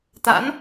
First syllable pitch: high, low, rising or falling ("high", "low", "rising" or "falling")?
rising